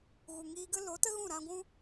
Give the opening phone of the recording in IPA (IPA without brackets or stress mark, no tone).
ɣ